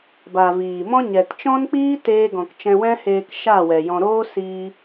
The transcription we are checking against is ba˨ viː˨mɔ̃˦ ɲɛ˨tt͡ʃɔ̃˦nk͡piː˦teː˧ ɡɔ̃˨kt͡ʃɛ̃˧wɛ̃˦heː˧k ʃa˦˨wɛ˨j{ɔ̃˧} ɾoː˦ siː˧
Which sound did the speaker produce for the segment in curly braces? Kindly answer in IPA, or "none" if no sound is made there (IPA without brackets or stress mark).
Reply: ɔ̃˧